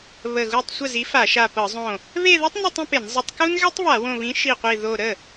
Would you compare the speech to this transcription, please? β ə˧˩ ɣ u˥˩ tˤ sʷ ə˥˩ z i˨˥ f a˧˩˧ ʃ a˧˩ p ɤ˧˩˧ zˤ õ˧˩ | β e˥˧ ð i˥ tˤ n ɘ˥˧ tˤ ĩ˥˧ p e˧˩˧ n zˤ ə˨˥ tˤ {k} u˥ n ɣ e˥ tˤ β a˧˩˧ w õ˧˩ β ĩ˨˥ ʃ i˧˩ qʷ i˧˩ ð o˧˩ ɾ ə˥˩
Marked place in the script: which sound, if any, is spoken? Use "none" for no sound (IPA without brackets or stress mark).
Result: k